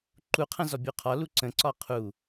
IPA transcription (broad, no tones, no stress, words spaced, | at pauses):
ǃuqʰɐ̃ zɔbʲuqʰɒlu ǀə̃ǀɒ qʰu